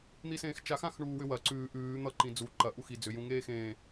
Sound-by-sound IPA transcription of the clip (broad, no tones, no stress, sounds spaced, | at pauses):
n̪ i s ẽː x t͡ʃ a x ã x ɳ uː w ʏ w ɐ ǀ ʉː ʔ ʉː n̪ ʌ ǃ ĩ d͡z u ǃ ɐ ʔ u x i d͡z ʏ j ũ ŋ eː x ẽː